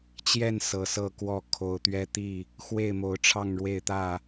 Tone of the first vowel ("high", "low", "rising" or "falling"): falling